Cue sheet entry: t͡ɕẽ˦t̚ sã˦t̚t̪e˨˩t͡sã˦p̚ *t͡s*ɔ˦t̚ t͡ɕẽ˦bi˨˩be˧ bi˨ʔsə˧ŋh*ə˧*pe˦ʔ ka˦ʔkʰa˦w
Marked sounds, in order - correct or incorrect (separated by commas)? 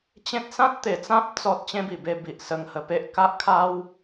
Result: correct, correct